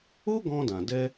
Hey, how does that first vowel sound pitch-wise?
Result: high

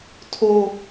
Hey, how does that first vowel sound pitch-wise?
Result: high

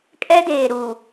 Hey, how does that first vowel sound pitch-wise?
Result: high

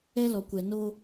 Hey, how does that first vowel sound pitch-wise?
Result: high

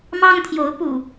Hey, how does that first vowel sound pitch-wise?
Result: high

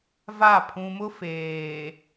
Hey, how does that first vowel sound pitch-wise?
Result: falling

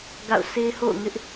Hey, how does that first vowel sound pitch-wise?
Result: falling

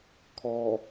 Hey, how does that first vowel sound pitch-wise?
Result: low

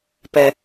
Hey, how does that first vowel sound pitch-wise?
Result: low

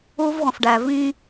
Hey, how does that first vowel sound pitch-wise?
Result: high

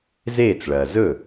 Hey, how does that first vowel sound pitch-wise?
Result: falling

